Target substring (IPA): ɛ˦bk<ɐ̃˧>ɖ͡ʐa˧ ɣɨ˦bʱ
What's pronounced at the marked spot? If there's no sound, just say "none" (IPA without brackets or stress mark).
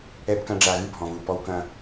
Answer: ɐ̃˦